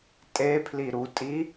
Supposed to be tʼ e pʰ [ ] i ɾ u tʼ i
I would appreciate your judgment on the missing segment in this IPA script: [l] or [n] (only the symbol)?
l